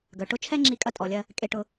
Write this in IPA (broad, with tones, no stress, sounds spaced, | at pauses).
ɡ œ˨ ʈ ʊ˦ t͡ʃʰ ɛ˦ ŋ͡ǁ i˧ kʼ ɐ˧ tʼ ɔ˨ lʲ ɐ˧ | kʼ e˧ ʈ ʊ˧